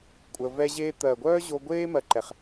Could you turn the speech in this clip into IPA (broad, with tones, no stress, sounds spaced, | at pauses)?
kʷʼ ə˧ v ɛ˦ ʑ eː˦ t̪ ɜ˨ ɡʷ œː˦ ʑ o˧ ɡʷ eː˦ m ɜ˧ ǃ ɛ˨ χ